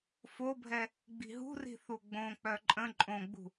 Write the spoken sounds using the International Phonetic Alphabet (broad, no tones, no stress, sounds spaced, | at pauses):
f o bʱ ɛ | ɡ͡b i̤ ɦ ṳ r i̤ θ u ɡ͡b õ k͡p œ ǃʼ ə̃ ǃʼ õ ɡ͡b ṳ